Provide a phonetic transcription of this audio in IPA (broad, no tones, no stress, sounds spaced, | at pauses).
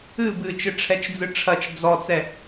ɨ b ɨ t͡ʃ ɨ ʈ͡ʂʰ ɛ t͡ʃ d͡z ɨ ʈ͡ʂʰ ɐ t͡ʃ d͡z ɔ t͡s ɛ